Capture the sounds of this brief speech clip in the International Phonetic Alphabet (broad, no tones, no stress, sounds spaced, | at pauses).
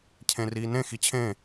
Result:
cʰ ẽ r iː n ẽ x i t͡ɕʰ ẽ